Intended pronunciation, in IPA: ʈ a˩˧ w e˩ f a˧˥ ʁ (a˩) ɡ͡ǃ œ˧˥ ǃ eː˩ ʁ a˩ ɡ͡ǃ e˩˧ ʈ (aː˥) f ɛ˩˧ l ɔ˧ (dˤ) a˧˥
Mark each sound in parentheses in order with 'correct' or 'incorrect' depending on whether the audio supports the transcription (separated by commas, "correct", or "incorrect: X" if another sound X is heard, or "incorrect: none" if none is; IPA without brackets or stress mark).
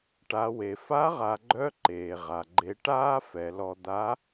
incorrect: a˩˧, correct, incorrect: d̪